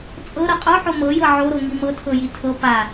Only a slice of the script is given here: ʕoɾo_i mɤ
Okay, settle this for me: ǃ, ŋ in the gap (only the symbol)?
ŋ